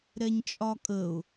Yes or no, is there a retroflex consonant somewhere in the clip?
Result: no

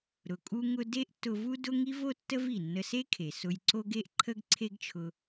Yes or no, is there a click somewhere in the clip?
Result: yes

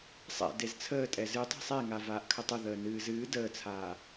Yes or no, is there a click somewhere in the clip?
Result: no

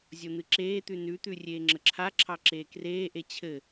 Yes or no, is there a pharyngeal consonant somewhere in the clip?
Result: no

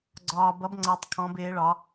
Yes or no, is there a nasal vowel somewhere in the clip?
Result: yes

